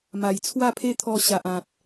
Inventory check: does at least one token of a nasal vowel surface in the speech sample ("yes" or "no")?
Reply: yes